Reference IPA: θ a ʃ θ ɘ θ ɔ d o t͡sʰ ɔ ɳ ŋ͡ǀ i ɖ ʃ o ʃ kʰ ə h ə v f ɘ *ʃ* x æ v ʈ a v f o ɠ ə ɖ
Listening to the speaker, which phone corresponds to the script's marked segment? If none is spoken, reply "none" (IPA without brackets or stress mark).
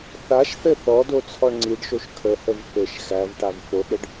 ʃ